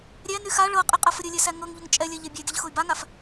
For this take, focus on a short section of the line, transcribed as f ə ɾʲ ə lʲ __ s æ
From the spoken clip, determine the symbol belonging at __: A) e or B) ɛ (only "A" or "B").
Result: B